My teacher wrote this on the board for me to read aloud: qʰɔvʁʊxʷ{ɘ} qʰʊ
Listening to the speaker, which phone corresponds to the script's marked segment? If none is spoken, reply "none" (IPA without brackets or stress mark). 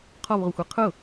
e